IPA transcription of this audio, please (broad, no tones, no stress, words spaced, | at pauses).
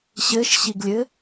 ɕɘʃɕiɡlʲɘ